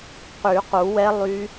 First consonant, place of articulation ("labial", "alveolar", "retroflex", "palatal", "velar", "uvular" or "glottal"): uvular